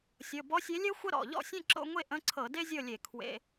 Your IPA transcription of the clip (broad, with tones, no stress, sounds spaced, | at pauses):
sʲ ɤ˩˧˩ b ɔ˧˥ sʲ e˧˥ lʲ ɛ˥ xʷ ə˥ ɾ ɔ̰˩˧˩ ʎ ɔ̰˥˨ sʲ ɛ̃˥˨ ǁ o̰˧˥˧ ŋʷ e˥˨ ʔ ə̃˧˥˧ ǀʰ ɤ˧˩˧ d e˥ zʲ ɤ˥˨ lʲ e˧˩˧ kʰ w ḛ˧˥˧